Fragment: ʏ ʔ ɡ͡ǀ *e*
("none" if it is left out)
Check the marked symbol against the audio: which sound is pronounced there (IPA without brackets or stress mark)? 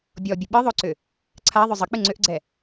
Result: ɛ